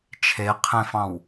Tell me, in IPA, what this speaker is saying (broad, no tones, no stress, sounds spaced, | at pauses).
t͡ʃʰ e qʰ ẽ f ɑ̃ w